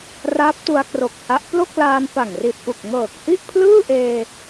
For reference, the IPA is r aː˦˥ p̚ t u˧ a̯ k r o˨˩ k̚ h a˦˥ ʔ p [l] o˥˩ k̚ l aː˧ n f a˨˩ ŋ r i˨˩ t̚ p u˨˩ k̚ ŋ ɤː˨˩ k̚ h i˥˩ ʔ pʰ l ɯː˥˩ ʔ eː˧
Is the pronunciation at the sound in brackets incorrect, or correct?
correct